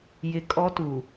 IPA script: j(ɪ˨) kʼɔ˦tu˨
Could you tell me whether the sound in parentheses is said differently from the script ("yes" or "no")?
no